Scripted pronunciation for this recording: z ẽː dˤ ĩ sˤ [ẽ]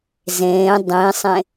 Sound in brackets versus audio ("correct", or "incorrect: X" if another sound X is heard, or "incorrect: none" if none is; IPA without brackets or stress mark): correct